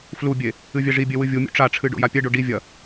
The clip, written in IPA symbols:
f l u bʲ e | ɨ vʲ ɛ ʐ i bʲ e w ɨ vʲ u mʲ ṵ ʈ͡ʂ a ʈ͡ʂʰ ɨ ɖ o̰ j a pʲ ɛ ɖ o ɖ i vʲ ɐ

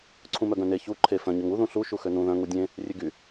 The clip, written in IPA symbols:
ǀʰ ũ m œ ɡ œ̃ n e ç u ǃʰ e f œ̃ ɲ ø ŋ u ð ũ ɬ u ʃ u x ø n ũ ð œ̃ ŋ u dʲ ẽ | rʲ ø ɡ y

